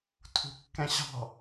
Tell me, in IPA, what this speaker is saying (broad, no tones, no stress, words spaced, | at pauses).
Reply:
tʰṳkːɛ̃ɕɑ̤